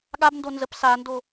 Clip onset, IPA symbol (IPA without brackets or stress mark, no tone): ɠ